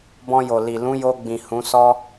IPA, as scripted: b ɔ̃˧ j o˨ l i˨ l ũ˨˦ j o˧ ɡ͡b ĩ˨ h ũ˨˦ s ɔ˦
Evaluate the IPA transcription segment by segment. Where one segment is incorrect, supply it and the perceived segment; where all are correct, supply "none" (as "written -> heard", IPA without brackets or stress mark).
none